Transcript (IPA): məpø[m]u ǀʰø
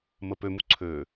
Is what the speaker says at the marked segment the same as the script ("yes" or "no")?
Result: yes